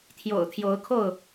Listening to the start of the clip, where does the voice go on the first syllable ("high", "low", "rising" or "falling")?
low